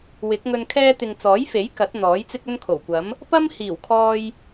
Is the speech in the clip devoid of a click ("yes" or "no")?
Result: yes